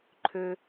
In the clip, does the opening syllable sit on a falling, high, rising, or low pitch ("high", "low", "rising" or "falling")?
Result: high